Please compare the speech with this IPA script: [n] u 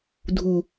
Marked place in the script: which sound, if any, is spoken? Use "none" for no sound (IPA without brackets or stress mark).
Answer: dʱ